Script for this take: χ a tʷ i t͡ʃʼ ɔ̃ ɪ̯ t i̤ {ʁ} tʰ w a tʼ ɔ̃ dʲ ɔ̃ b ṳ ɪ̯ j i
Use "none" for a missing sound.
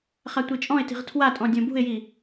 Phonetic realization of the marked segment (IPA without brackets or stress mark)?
ʁ